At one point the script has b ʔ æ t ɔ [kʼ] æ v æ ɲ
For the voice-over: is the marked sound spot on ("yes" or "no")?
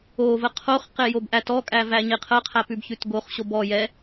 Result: yes